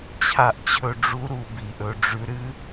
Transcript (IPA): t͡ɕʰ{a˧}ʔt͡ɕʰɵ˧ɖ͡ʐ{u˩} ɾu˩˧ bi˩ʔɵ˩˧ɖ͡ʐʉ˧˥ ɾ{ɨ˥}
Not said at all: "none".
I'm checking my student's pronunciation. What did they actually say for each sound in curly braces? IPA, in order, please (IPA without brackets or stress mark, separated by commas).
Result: a˧, u˧˥, ɨ˥